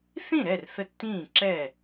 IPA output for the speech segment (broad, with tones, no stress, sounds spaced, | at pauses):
θ ĩ˥˨ ɾ ɛ˥˨ r θ ə˦ tː ĩː˥˨ ǁ ɛ˥˨